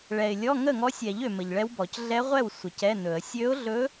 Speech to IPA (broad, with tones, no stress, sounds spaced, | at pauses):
ɭ ɛ˨ ɪ̯ lʲ ɔ˧˥˧ ŋ ə˥˩ ŋ ɔ˧˥ sʲ ɛ˨˩˦ ʎ ø˨ m ə˨ ʎ ɭ ɛ˧˥ w b ɔ˨˩˦ c ɮ ɛ˧˥ ʁʷ ɛ˥˩ w sʷ ə˨˩˦ c ɛ˧˥˧ n ɵ˨˩˦ ə̯ sʲ ø˧˥ ʊ̯ ɮ ɵ˧˥